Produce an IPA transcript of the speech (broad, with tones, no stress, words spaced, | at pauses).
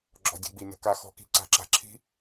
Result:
ɡ͡ǁɔ̤˧˩˧dʲə̤˧˩˧ɡ͡bi˨˩ nə̤˨˩ka˧˩˧ xɔ̤˧˩˧ki̤˧˩˧ǀa̤˧˩˧ǁa̤˨˩ ǁʰi̤˦˥